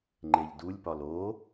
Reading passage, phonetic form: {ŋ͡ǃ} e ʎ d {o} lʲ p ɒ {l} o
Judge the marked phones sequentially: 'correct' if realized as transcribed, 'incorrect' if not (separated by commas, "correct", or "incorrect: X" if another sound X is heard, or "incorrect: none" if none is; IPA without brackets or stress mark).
correct, incorrect: u, correct